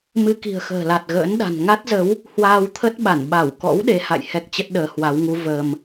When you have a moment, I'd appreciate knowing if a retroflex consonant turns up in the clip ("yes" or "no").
no